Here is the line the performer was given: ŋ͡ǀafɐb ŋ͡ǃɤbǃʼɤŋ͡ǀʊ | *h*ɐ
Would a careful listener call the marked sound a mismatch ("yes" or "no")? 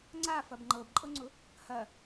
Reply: no